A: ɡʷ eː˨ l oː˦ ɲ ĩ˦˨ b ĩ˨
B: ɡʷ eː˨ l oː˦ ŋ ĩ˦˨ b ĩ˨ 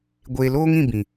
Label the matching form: B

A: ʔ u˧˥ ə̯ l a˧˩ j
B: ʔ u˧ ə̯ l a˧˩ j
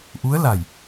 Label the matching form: A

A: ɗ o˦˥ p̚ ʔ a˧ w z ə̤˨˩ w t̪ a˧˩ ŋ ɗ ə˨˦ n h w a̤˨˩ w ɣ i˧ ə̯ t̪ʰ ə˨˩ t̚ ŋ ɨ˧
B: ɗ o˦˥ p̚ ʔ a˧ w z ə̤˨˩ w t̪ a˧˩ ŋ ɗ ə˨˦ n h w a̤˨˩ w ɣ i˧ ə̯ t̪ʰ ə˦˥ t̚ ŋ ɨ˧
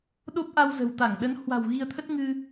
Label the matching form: B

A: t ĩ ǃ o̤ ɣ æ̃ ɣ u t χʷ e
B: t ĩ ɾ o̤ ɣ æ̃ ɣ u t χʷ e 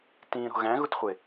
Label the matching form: B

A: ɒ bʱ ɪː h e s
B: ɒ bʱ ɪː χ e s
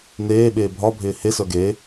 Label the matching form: A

